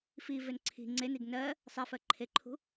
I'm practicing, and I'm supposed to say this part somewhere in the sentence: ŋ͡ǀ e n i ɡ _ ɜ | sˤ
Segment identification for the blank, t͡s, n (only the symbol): n